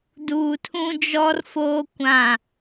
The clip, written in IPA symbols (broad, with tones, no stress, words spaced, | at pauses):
duː˨tʰũ˦ d͡ʒɔ˦rfoː˦ kʷã˦˨